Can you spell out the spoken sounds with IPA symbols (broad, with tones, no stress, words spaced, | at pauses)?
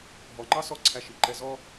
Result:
ɦɔ˨ŋ͡ǃɑ˦ sɔ˦ǀʰæ˧ ʃi˨ǃɛ˧ zɔ˦